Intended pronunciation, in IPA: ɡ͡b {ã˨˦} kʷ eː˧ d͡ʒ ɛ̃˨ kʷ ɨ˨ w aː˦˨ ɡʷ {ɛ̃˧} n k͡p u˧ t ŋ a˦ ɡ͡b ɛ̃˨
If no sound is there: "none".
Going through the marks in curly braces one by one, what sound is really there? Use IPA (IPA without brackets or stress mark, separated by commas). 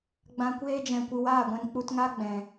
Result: ã˨, ɛ̃˧